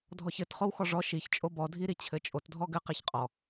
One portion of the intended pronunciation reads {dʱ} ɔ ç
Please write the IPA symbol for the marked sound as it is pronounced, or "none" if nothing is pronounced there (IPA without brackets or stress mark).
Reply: dʱ